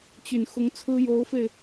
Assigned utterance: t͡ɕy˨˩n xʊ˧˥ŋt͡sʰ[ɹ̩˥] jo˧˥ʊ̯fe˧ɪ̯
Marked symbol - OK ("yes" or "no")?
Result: yes